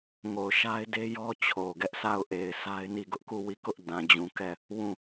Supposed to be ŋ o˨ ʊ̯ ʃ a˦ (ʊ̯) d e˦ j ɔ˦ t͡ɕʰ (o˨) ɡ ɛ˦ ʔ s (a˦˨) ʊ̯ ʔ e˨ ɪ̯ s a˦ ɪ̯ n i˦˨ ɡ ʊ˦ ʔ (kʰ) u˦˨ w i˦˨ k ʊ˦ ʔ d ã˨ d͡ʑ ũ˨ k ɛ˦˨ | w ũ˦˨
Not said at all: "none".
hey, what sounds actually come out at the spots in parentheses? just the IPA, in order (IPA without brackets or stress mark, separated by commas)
ɪ̯, o˨, a˦˨, k